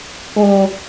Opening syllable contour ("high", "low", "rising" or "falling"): high